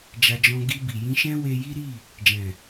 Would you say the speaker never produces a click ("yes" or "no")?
yes